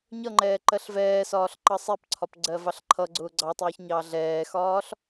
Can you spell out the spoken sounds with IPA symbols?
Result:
ɲʌŋ͡ǃɛː ǃɜɬvɛːsɒːɬ ǃʌsˤɛpǀʰɒp ɡ͡ǀɜvɑɬǃʰʌɡ͡ǀʊː ɡ͡ǀɑtˤʊːç ɲɑɮɛːxɒːɬ

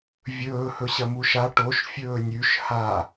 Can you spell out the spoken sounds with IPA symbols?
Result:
vʲɵː hɵɕɐmuʃa ʈoʃ fʲɵːnʲʉʃ ha

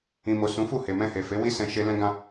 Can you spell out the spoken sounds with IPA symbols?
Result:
ĩ˨mo˨ sũ˨˦fu˦˨he˨mɛ̃˧ he˨fe˨˦wi˦sɛ̃˧ ʃe˦ lɛ̃˦ɡã˦

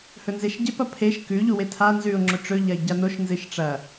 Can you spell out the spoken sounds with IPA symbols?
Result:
hɵnzeʃɟep ɐpʰeʃ kʉ ʎuwetʰa nzʉʊ̯ ŋ͡ǁɵʈ͡ʂɵ ʎɐɪ̯ɟanoʃ nzɨʃʈ͡ʂɐ

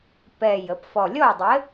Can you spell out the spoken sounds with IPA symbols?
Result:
pɛ˨˩ jə˩˧pfɔ˨˩lʲɔ˥˨y̯dˤɘ˨˥

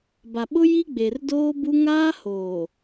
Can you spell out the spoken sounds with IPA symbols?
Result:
ba˨ɓʊ˦ ji˦ ɡ͡be˨rdoː˦bu˦ ŋaː˦hoː˨

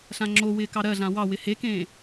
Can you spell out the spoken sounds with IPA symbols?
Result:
ɬãŋ͡ǁowɪː kɑɾɜɮã wɑwɪ hekẽː

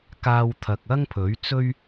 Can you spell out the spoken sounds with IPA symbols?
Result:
kaː˥wt̪ʰɐ˧k̚ ɐ˥ŋpʰɵ˨˥ɥt͡sɵ˥ɥ

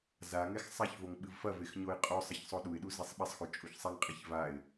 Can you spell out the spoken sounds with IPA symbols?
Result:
zaŋɛx sˤaç voŋɓɨvfɐvex ɲoɪ̯qʼosˤɐç sˤoɗuɪ̯ɗu zesˤɓesˤxu t͡ʃʼuçsˤɛŋqʼɛç vaɪ̯

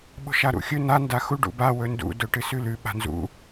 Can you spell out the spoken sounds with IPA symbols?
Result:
ɓo̤ʃaɾṵxʲɵ na ndaxu ɖṵba wɵndṵ dɵʈɨsʉlʉ ɓa̤nzṵ

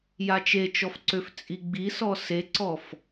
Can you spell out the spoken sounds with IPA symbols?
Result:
jat͡ʃet͡ʃɔf ǀøft͡sʼiɡ͡bisɔ seǀɔf

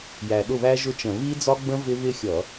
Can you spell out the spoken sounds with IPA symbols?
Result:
jæ˨˩ɗʊ˥˩βæ˦˥ ʒʊ˥˧t͡ʃə̃˧˩˧ βi˦˥d͡zɒ˦˥ɡ͡bə̃˦˥ vɪ˦˥βɪ˥˧xʲʌ˧˩˧

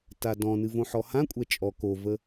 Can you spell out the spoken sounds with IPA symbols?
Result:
tadɔ̃nɨ võħɔhãkʷʼɛ t͡ʃʼɔ kovə

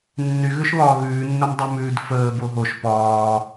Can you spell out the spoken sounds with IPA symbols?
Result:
nːyɣʉʃβɒː ɣʉːnːəm dˤʉmʉːdfəː boɦoʃ pɒː

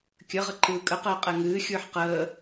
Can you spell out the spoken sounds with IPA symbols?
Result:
kʲəʁə ǃɯːkʼəqəː qʼɛŋɨːxʲɯːħ qəː

